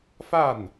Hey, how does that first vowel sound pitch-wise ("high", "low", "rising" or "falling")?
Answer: falling